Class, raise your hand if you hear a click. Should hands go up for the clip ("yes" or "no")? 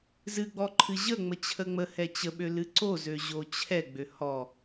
yes